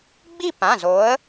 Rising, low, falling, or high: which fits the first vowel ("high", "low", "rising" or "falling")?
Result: falling